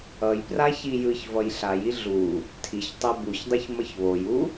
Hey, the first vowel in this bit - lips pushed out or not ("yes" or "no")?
no